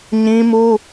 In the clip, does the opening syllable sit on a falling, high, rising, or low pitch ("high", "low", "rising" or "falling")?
high